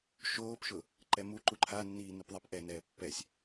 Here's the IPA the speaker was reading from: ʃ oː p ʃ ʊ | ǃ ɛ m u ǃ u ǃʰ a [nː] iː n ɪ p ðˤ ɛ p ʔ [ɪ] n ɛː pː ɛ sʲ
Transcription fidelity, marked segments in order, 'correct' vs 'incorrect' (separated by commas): correct, incorrect